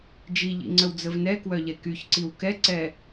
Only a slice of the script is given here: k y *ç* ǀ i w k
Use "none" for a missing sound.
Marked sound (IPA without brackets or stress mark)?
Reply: ç